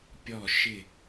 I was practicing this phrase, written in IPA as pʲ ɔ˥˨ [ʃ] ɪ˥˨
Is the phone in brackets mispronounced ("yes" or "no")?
no